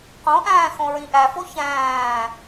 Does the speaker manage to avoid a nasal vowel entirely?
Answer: no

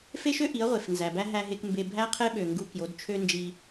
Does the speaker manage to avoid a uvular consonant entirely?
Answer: no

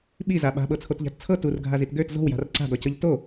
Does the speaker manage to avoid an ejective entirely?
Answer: yes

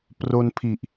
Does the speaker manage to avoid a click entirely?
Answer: yes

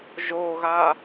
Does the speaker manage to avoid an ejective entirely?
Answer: yes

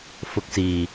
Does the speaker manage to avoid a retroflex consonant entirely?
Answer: yes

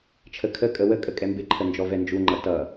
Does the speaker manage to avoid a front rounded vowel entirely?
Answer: yes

